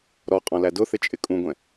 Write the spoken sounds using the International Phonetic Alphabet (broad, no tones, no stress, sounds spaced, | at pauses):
ɾ ɔ qʼ ɔ̃ l æ d ʊ θ ɪ t͡ʃʼ ɪ kʼ ũ ɡʷ ɛ̃